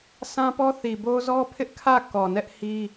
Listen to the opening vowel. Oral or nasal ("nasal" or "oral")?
nasal